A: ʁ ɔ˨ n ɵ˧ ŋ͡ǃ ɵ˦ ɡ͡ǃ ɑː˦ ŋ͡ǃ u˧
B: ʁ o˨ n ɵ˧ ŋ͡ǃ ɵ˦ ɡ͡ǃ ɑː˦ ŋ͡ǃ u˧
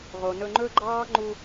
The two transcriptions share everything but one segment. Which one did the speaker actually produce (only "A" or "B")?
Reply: B